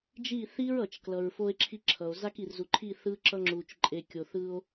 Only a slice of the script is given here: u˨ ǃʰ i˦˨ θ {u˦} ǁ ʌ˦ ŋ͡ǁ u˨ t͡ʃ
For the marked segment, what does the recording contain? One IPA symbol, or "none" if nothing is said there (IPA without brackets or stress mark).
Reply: ɯ˦